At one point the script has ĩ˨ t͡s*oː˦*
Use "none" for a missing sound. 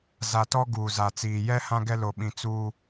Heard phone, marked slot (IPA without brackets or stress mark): uː˦